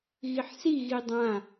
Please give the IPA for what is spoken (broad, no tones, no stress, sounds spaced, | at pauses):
ɣ i ħ s i ɣ i dˤ ã